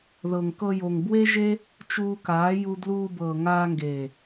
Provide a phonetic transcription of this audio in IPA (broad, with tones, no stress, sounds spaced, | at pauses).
ð ɤ˨ ŋ k ɤ˧ j o˨ ŋ b w e˦ ʒ e˦ | t͡ʃ uː˧ k aː˨˦ j u˧ d l uː˧ b ɤː˨ ŋ aː˧ ŋ ɡ eː˨